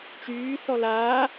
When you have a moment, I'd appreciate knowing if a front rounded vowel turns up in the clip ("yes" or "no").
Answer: yes